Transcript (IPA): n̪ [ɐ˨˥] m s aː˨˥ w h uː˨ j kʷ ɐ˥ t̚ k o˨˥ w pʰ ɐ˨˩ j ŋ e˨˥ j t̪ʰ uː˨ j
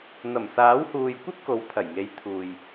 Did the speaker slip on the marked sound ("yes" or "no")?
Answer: yes